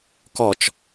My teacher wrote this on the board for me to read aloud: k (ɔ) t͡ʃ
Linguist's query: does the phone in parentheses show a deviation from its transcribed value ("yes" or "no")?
no